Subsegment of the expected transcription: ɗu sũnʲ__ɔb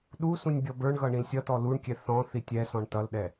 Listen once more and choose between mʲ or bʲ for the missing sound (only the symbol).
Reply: bʲ